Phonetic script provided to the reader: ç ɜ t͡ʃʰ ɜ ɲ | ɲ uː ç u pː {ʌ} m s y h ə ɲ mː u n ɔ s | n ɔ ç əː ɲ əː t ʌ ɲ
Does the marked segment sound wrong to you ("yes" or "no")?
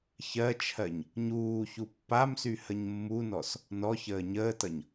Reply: yes